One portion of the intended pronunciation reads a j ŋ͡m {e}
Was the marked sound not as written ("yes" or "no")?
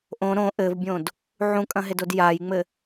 yes